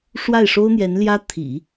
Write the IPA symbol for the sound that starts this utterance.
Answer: ʂ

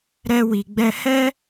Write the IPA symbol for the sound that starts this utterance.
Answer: ɾ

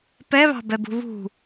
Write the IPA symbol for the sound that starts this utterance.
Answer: p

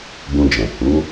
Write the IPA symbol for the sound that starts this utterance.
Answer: b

